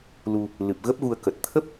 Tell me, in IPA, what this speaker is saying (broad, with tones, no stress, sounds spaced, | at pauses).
l u˧ | l ɨ˨˩ p̚ ɣ ə˦˥ p̚ ɣ u˧ ə̯ k ə˨˩ t̚ t̪ʰ ə˦˥ p̚